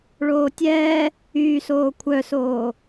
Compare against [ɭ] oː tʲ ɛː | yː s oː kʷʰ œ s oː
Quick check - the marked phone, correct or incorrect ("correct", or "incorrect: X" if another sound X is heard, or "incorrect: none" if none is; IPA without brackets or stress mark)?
correct